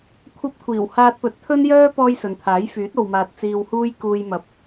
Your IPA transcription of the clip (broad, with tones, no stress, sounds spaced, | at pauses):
kʷʰ ɐ˥ p̚ kʷʰ iː˨˩ w h aː˧ t̚ p ɵ˨˥ t̚ t̪ʰ ɵ˥ n j œː˥ p ɔː˥ j s ɵ˨ n t̪ʰ aː˨˥ j f yː˨˥ t̚ o˨ w m aː˨ t̚ t͡s iː˧ w h uː˥ j k uː˧ j m ɐ˨ p̚